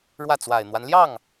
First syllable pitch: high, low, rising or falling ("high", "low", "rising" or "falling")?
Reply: falling